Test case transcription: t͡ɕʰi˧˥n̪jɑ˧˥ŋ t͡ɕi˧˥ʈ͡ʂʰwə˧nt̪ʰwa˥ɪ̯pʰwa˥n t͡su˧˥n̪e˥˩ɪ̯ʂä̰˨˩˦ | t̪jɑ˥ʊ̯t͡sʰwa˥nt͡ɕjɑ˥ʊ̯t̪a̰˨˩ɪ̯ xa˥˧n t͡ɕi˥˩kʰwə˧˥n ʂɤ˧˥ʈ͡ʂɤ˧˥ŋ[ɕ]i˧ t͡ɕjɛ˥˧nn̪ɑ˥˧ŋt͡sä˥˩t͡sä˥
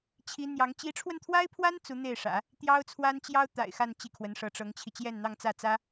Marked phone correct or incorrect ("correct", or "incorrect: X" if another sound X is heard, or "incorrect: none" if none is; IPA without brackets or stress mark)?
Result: incorrect: t͡ɕʰ